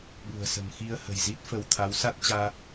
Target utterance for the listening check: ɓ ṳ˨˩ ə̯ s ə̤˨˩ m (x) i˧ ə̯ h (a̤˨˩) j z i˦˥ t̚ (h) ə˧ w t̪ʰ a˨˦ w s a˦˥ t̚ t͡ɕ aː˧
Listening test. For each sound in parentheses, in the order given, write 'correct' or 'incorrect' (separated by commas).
correct, incorrect, incorrect